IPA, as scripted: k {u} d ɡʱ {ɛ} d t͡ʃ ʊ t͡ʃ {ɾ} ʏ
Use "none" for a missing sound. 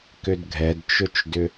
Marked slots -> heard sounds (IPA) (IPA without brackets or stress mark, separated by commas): ʏ, ɛ, d